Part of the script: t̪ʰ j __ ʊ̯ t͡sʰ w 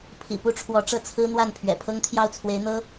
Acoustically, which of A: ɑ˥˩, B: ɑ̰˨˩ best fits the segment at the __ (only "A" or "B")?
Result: A